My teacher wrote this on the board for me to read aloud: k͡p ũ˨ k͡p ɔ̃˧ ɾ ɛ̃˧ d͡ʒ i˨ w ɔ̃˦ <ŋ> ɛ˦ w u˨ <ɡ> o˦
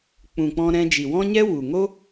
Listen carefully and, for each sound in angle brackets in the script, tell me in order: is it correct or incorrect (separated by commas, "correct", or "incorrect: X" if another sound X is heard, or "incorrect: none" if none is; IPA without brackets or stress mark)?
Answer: incorrect: ɲ, incorrect: ŋ